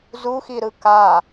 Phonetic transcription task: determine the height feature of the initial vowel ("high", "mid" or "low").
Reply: high